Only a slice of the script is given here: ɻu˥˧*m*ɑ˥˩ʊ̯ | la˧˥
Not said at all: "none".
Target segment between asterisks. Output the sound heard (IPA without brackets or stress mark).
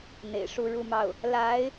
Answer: m